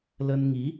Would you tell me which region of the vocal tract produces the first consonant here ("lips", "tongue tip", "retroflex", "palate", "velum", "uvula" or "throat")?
tongue tip